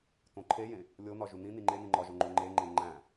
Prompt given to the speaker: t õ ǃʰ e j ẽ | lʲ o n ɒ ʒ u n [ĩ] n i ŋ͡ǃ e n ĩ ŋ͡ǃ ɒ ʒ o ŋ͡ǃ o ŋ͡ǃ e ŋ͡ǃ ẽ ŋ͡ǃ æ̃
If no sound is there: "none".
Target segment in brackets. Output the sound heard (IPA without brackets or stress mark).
ĩ